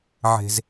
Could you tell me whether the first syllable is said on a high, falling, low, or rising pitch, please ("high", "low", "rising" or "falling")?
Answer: high